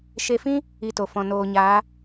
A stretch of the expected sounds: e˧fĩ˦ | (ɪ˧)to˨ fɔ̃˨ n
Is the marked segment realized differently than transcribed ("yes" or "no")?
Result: yes